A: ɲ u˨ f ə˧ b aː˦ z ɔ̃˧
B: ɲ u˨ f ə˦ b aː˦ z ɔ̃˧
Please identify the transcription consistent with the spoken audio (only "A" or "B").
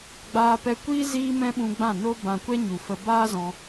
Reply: A